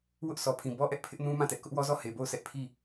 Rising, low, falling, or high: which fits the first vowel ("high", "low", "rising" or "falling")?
high